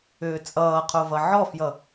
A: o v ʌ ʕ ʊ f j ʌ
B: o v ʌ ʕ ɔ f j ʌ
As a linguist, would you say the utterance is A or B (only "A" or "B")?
B